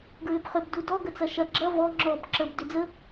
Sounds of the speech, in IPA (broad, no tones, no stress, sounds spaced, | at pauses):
ɡ ɹ ʏ b χ ʏ b d u d ɔ ɡ ə t͡s ɐ ʃ ɐ ɡ͡ǁ ɐ v ɔ ŋ͡ǁ ɔ b ǁ ə b d ʏ d͡z ə